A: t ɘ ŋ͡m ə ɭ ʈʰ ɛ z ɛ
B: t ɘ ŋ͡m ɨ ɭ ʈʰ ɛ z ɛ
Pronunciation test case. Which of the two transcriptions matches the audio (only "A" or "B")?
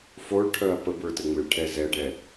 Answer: B